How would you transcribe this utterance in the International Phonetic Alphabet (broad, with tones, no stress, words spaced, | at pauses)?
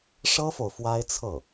ʂɤ˥fo˨ʊ̯ fwa˥ɪ̯t͡sʰɤ˥˩